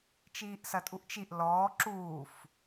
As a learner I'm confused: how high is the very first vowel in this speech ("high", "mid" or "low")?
high